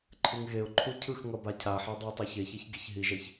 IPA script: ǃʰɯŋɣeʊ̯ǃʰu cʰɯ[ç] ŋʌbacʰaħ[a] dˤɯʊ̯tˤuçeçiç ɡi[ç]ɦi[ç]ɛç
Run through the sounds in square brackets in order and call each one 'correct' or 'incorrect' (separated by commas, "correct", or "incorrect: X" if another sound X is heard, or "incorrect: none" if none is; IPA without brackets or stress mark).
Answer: incorrect: x, correct, correct, incorrect: ʒ